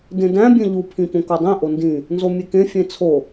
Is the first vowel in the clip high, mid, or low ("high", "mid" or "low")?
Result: mid